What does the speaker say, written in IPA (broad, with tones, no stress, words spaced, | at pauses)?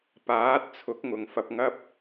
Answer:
paː˨˥t̚ t͡sʰʊ˨˥k̚ŋʊ˨ŋ fɐ˧p̚ŋɐ˥p̚